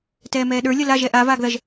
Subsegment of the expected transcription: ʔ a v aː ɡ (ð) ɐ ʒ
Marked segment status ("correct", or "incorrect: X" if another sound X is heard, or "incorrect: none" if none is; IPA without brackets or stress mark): correct